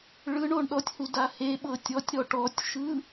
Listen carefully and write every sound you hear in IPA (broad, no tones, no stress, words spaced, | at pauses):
ɭɯɳ oɳɗɔtʲhu daheɓɤ tʲɔtʲɾɔ ʈɔtʲʃɯ